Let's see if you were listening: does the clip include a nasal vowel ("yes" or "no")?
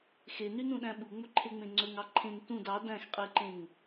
yes